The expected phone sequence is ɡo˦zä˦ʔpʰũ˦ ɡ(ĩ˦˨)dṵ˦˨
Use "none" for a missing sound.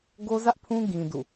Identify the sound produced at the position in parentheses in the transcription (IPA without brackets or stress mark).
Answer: ĩ˦